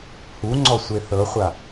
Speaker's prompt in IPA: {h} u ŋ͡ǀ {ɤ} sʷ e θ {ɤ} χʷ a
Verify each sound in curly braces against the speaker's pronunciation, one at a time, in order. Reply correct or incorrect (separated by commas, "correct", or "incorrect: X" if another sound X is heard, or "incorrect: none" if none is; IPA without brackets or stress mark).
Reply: correct, incorrect: ɔ, correct